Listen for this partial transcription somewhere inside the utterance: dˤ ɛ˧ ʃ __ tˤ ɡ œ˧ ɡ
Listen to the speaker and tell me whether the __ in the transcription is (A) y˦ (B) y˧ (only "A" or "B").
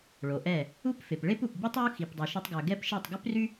A